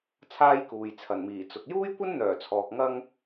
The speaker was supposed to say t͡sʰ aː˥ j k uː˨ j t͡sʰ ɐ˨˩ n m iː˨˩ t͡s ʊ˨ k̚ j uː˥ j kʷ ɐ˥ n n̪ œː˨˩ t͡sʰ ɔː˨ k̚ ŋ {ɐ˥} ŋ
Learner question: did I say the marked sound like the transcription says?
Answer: yes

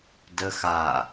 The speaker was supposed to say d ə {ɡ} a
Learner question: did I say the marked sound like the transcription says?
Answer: no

